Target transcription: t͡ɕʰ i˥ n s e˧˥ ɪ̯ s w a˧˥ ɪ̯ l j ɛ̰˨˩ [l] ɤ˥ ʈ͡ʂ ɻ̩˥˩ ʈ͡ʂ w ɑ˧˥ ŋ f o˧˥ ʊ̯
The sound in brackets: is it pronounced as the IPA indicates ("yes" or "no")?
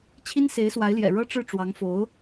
no